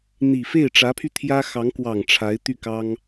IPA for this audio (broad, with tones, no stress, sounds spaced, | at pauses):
n̪ i˨˩ f e˥˩ ɪ̯ ʈ͡ʂ ä˧˥ pʰ y˧ t̪ʰ j ä˥ x ɑ˧˥ ŋ k w ɑ˨˩ ŋ ʈ͡ʂʰ a˧˥ ɪ̯ t̪ y˥˩ k ɑ˥ ŋ